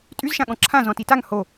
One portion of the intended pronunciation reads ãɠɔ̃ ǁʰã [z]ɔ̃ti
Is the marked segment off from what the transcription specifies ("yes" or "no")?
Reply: no